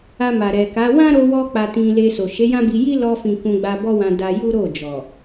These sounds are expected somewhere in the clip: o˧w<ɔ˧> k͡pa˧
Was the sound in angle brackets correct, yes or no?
yes